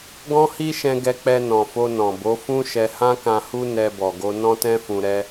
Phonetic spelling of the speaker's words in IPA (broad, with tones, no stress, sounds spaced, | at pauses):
ɡ ɔ̃˦ h i˦ ʃ ɛ̃˧ ɡ ɛ˧ k͡p ɛ˧ n ɔ̃˨ f o˧ n ɔ̃˨ b o˨˦ f ũ˦ ʃ ɛ˧ h ã˦ k ã˧ h u˦ n ɛ˧ b ɔ˨ ɡ o˧ n ɔ̃˦ t ɛ̃˦ f ũ˧ ɾ ɛ˦